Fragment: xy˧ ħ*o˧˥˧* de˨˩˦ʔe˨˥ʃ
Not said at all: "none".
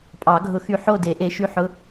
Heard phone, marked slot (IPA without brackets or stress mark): o˥˨